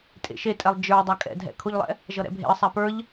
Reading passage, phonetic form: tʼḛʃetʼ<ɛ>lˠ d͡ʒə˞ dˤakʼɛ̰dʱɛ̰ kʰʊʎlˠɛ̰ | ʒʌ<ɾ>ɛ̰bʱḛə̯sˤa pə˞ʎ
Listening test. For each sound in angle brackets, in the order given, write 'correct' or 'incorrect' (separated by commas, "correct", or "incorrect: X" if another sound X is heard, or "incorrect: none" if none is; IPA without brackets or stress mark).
correct, correct